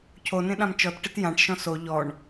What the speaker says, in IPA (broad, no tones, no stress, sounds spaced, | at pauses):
cʰ o n ẽ ɗ ã m t͡ʃ ɔ t ʈ ɪ t j ã ʈ ʃ ɔ̃ s o ʎ ɔ ɳ